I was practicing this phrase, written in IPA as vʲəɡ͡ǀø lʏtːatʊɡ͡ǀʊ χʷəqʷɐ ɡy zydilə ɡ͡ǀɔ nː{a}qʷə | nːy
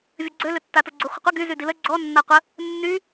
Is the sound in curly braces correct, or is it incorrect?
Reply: correct